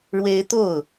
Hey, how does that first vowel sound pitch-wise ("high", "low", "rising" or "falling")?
high